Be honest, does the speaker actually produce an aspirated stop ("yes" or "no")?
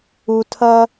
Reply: yes